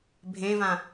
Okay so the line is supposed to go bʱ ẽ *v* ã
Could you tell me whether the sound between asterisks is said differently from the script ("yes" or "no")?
no